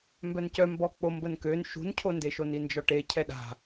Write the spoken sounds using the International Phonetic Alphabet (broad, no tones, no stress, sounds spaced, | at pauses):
m b œ n c œ m b ɔ k͡p o m b ə n k ø n ʃ ṳ n cʰ o n d e ʃ o n i n d͡ʒ ɔ ʈ e cʰ ɛ ɗ a̤